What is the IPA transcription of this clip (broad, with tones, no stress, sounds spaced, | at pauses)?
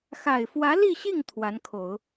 x a˨˩ ɪ̯ f w ä˧˥ l i˥˧ ɕ i˥˩ ŋ t̪ʰ w a˧˥ n kʰ o˨˩˦ ʊ̯